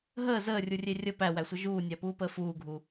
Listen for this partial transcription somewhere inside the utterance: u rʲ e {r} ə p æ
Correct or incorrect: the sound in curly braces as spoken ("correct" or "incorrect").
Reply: incorrect